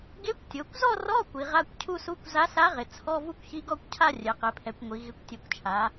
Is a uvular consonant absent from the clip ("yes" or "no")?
no